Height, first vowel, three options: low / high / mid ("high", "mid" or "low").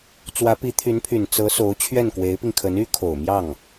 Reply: low